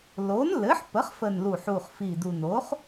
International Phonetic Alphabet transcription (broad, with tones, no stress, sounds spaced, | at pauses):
l o˩˥ n l ɘ˩˥ ħ p ə˩˥ χ f ə˨˩ n l u˨˩ ħ u˨˩ χ f i˨˩ d u˨˩ n o˩˥ χ